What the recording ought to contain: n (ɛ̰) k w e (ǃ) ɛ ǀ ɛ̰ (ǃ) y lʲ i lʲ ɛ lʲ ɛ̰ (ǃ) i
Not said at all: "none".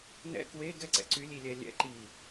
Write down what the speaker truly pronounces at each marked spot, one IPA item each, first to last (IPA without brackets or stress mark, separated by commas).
ɛ̰, ɡ, ǀ, ǃ